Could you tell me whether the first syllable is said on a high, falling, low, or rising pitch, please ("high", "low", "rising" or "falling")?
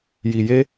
low